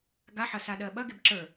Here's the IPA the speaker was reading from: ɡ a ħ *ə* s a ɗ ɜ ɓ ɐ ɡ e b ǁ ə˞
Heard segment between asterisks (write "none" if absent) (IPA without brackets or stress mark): ɐ